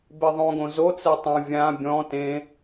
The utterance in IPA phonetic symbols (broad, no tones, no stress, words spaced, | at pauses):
beðˤõɡõ zot͡sɛ tˤũ vʲã bʲɔ̃ tẽ